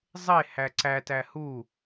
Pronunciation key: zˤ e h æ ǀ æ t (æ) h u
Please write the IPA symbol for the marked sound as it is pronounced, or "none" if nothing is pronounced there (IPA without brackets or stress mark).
æ